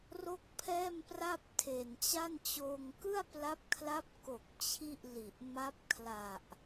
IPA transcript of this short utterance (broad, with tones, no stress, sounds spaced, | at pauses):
r o˥˩ k̚ pʰ ɛː˥˩ m p r a˥˩ p̚ tʰ e˨˩ n t͡ɕ a˥˩ n t͡ɕ oː˧ ŋ k ɯ˥˩ a̯ p l a˦˥ p̚ kʰ l a˦˥ p̚ k o˨˩ k̚ t͡ɕʰ i˥˩ ʔ l i˨˩ ʔ m a˦˥ p̚ kʰ l a˨˩ ʔ